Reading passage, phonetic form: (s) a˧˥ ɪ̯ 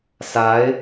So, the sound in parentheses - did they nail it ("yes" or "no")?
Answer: yes